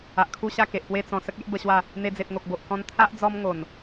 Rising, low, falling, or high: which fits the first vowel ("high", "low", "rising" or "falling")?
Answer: low